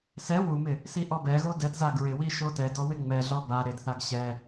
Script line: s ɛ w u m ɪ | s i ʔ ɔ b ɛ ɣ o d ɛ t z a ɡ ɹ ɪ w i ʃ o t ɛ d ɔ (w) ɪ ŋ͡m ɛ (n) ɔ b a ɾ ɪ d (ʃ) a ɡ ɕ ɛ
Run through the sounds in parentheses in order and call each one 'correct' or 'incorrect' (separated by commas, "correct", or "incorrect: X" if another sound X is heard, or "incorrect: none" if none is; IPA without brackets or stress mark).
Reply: correct, incorrect: ɮ, incorrect: θ